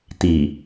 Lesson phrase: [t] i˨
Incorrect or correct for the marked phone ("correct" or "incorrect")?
correct